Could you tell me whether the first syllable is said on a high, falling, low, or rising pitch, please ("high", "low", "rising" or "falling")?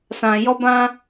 low